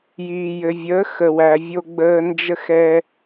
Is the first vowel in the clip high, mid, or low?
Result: high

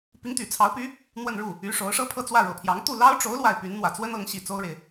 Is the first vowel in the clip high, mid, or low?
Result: high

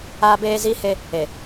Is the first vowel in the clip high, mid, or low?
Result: low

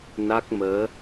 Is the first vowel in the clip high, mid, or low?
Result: low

